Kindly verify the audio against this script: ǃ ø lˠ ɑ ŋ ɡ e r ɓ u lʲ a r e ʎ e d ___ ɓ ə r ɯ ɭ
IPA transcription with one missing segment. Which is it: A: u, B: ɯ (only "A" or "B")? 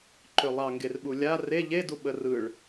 A